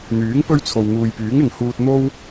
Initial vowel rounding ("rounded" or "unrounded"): rounded